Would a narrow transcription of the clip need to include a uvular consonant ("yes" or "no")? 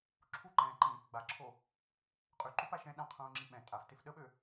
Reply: yes